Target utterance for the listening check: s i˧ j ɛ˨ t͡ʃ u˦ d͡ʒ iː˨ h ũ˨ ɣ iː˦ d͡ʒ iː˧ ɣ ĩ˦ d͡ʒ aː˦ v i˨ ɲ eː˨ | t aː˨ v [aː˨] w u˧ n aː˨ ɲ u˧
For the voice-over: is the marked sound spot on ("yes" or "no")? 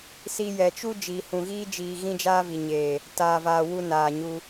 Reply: yes